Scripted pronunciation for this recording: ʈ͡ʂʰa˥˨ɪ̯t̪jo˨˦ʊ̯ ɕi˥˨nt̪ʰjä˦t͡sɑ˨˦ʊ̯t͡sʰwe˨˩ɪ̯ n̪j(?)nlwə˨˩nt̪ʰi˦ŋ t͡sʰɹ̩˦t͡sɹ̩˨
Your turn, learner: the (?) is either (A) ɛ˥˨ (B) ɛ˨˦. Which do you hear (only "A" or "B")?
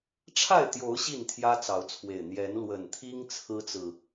B